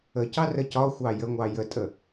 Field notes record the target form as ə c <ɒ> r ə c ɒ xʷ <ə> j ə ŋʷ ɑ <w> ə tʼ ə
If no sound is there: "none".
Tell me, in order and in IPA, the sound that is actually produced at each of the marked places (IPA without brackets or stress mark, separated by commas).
ɑ, ɑ, j